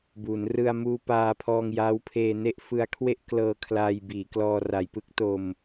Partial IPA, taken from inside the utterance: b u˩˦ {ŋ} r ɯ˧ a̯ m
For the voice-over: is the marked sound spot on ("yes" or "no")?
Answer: no